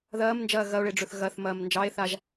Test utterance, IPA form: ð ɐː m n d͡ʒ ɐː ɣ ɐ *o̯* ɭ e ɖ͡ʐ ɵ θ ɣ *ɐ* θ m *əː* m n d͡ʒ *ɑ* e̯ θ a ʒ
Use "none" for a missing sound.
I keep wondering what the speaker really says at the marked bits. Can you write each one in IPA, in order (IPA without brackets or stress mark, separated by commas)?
o̯, ɐ, ɐː, ɑ